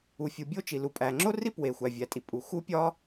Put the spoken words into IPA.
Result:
u˩fʲu˩bʲo˥ t͡ʃi˩lu˩pʼæ˩ ŋ͡ǁo˥ri˥ pwe˩xʷæ˩ vʲæ˩tʼi˩pʼu˩ xu˥pʲɒ˥

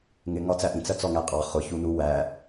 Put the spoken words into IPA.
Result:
ŋɪ ŋɒt͡sæʔĩ t͡sɜt͡sɔŋæqʼɑ χʊ çunu wæ

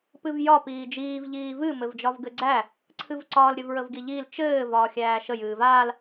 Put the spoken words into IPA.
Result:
pɨvjɒ piːd͡ʒiːv ʎiːvɨ mɘvd͡ʒɒvɡɘɡ͡ǀæ | ǀʰɨvǀɒːl ɾʲɘvɹəvɡiʎiːl t͡ʃɘː vɒːxʲæːʃə jɨːvaːl

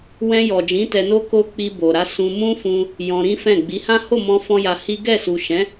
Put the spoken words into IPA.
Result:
wɛ̃˧jɔ˨d͡ʒĩ˨˦ tɛ˧no˦ ko˧ k͡pi˧bo˨ɾa˨˦ sũ˧mũ˦fũ˧ | jɔ̃˧ɾĩ˦fɛ̃˦˨ ɡ͡bi˨˦hã˦ ho˦˨mɔ̃˧ fɔ̃˦ja˧hi˦ ɡɛ˦˨ su˨ʃɛ̃˨˦

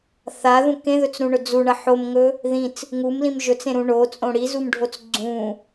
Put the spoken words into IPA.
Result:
θaðũ kẽðɵt͡sɾũɳɵ d͡zuɳɐ ħomŋɵ | ðĩt͡s | ŋumlĩm ʒɵt͡sẽɾũ ɳot͡sʼõ ɽizumɖʱot͡s ɡ͡ǀũ

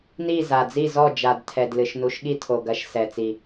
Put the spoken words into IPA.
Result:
ni˥˩za˨˩d͡zi˥˩zɔ˥˩ d͡ʒa˨˩dtʰɛ˨˩d lɨ˨˩ʃnu˨˦ʃɠi˥˩ tʰo˨˩ɡɐ˨˦ʃ sɛ˨˩t͡si˨˩

